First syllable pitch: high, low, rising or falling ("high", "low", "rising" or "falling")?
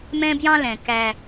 high